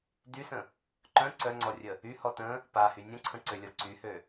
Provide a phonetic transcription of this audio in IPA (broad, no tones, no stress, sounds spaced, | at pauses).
d y s ə̃ | ǃ œ̃ ǀ œ ŋ͡ǀ ɔ rʲ ə | y h ɔ t ə̃ | p a h y nʲ ə̃ ǀʰ ə̃ ǀ ø lʲ ɔ ǀ y h ø